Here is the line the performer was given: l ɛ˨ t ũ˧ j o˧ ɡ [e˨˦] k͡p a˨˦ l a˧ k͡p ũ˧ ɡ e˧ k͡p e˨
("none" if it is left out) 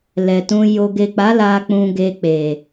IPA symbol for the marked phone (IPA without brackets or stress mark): e˨